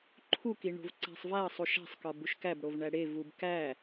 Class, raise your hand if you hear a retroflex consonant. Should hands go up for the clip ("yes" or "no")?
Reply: yes